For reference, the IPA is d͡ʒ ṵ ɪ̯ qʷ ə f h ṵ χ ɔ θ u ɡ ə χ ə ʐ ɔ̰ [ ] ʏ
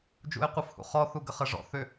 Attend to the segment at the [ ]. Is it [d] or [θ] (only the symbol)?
θ